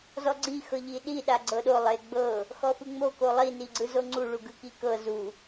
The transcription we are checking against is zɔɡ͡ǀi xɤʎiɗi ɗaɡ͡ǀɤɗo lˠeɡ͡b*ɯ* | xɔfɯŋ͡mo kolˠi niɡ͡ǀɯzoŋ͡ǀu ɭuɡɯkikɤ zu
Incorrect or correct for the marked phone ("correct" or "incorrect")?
incorrect